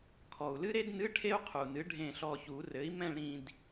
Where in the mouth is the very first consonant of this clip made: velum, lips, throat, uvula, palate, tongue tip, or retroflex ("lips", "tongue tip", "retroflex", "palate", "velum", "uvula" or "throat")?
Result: velum